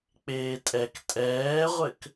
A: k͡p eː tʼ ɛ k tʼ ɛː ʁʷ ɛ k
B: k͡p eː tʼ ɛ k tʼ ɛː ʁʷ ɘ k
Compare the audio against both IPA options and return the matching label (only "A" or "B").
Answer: B